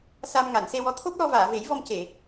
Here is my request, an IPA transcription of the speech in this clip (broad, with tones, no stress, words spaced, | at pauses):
sa˧m ŋa˨˩˨nse˧wɔ˧˥ t̪ʰo˦˥p̚lɔ˧vaː˨˩˨ ve˨˩˦jvɔ˧mce˨˩˨